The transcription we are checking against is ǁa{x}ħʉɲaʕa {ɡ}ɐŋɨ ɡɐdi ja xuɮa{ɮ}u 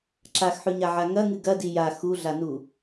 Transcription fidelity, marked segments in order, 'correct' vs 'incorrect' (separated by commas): correct, incorrect, incorrect